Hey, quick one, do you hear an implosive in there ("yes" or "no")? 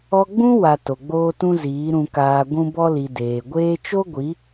no